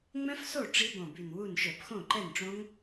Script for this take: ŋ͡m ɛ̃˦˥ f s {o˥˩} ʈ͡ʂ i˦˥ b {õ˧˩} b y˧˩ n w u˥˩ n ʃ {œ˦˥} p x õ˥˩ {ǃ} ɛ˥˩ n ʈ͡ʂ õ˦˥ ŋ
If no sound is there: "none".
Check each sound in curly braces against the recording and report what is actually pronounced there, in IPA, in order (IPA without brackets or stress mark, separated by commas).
o˥˩, õ˧˩, œ˧˩˧, ǃ